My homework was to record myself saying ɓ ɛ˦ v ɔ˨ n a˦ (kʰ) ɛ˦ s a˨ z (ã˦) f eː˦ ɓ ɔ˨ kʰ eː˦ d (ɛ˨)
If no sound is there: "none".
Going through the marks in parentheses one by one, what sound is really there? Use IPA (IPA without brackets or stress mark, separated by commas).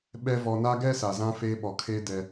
ɡ, ã˦, ɛ˨